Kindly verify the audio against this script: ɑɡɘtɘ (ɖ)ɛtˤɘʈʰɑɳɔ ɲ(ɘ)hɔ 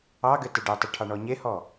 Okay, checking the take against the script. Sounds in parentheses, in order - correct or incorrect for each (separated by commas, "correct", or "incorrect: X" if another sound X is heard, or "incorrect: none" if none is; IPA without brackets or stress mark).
correct, incorrect: e